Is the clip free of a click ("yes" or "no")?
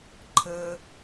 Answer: no